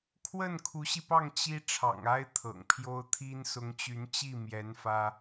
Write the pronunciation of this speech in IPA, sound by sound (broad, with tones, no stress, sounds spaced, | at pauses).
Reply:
kʰ w ə˥˩ n kʰ u˧˥ ɕ i˧ p ɑ˥˩ ŋ t͡ɕ i˥ ʈ͡ʂʰ ɑ̰˨˩ ŋ a˥ ɪ̯ t̪ʰ ɤ̰˨˩ ŋ pʰ j o˥ ʊ̯ t̪ʰ i˥ n s ʊ˧˥ ŋ t͡ɕ y˧˥ n t͡ɕ i˥˩ m j ɛ˧˥ n f ä˥